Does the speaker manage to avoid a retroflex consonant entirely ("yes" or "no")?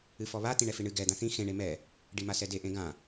no